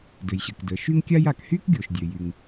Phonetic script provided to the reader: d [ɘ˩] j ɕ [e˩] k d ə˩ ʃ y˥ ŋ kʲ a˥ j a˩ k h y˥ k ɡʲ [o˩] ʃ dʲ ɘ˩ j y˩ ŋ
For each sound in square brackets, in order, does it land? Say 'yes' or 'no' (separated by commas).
yes, no, yes